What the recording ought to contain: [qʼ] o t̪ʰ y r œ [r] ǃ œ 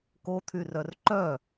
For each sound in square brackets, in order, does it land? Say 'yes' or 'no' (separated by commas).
no, yes